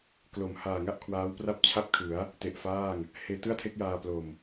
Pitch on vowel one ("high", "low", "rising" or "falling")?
low